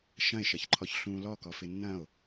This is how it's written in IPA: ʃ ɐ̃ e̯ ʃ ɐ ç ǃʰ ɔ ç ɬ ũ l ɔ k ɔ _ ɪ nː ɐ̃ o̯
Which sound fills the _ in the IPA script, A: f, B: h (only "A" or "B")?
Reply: A